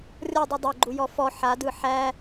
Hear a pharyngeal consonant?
yes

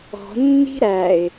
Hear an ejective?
no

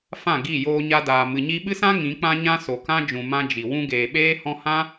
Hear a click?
no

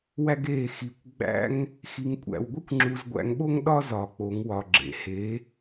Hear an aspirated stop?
no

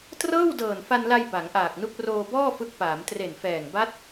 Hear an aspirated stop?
no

